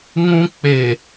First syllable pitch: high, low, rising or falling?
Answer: high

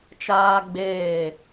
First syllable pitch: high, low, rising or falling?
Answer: high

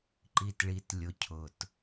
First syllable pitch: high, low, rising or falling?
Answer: low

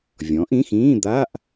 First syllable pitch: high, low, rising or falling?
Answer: rising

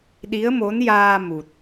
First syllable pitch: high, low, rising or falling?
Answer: rising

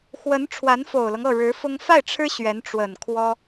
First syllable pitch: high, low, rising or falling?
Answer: rising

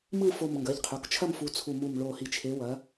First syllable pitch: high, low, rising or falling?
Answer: falling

